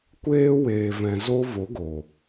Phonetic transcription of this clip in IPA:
kʷeː˦weː˨vɛ̃˨ zo˦vo˨˦ɡo˨

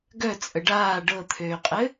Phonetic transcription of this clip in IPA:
ɡœ t͡sʼəɖaː ɖɤt̪ʰøːqʼɘ

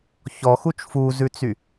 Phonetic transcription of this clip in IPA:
çɔxut͡ʃ fuzʉt͡sy

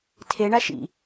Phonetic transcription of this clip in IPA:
tʰeɳa ʃḭ

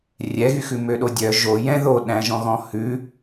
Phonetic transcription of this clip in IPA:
rʲɛɣyxʉ møɗodʲœ ʒo jɛ̃ ðoɗæ̃ʒɔ̃ ɣɔ̃hʉ

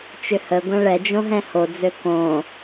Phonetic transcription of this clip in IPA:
t͡ʃʏhəɡʷɐ̃ ɭɛd͡ʒõ ɦɛ̃hod͡zø kõ

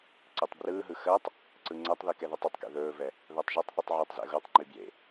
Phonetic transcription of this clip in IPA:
ǀetˤbrɯːɦɯ xɜtˤ | ǀɯŋ͡ǀɛtˤðɯ kɛðɛtˤɵtˤkḛ ðɵːvɛ | ðɜtˤʒɛtˤθytˤ ʕəːtˤzɛ̰ɣotˤŋ͡ǃi bjḛ

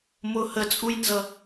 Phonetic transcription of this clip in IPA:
mʊ hət͡sʼujnzʌ

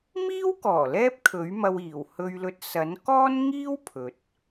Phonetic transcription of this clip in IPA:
miː˥wkɔː˨˩ lɛː˥p̚kʰɵ˨˥ɥmɐ˧wiː˨˩w hɵ˧ɥlɵ˧t̚ sɐ˨˥n kɔː˥nŋiː˥w pʰɵ˨t̚

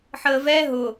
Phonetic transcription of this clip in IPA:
ħəːvɛ ɦʊ

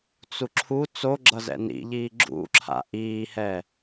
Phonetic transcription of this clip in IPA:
t͡suǁʰu t͡soɡ͡ǁʌ zɛ̰nḭʎiː ɡ͡ǁṵǁʰa̰ ʔiːhɛ

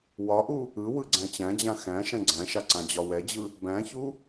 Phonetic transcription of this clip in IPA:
wɒʔu | ɯ wɯɡ͡ǀæ̃t͡ɕæ̃d͡ʑã xæ̃ ʃɛ̃ɡ͡ǀæ̃ʃa ǀãd͡ʑɒwɛd͡ʑɯ | bæ̃çu

